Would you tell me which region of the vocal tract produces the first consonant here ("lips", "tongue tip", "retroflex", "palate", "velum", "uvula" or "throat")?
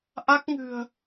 throat